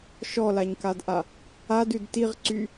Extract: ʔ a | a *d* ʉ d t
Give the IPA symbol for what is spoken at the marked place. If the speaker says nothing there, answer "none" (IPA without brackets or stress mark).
d